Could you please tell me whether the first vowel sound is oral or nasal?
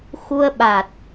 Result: oral